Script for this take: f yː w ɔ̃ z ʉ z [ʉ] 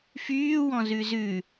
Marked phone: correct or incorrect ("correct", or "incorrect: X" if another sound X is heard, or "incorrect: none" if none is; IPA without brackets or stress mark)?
correct